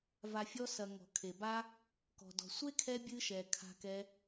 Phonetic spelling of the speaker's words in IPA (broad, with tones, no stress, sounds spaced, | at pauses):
v a˨ fʲ ɔ˦ s ɐ˨ ŋ ɔ̤˩ kʰ e˩ b a˦ | k ɔ̤˩ d ɔ̤˩ sʷ e˥ kʰ ɛ˦ bʲ ɨ˥ ʃ ɛ˨ kʰ a̤˦ k ɛ˦